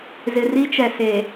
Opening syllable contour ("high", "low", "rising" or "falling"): low